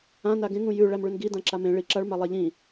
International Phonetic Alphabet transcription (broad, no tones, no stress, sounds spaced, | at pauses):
ã n a ɡ ẽ ŋ ũ j ʉ ɭ æ m ɭ ʉ n ɡ i d ã ǁ a m ẽ ɭ i ǁ a ɭ m a lˠ a ʎ ĩ